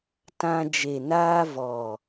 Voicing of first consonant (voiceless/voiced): voiceless